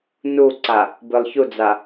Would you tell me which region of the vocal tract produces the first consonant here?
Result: tongue tip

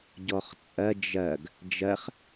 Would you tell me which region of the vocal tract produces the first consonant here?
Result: palate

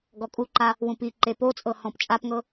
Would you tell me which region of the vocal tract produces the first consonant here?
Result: velum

